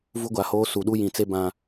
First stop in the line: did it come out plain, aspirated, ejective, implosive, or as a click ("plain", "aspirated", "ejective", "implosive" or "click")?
plain